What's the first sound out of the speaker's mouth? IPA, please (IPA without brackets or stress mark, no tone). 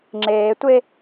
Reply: ŋ͡ǁ